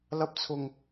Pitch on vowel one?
high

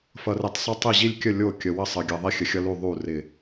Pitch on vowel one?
low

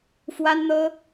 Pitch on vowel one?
high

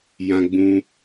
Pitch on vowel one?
high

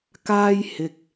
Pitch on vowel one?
high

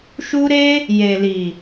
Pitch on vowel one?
high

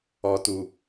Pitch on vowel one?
low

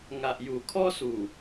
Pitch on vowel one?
low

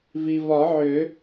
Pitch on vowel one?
low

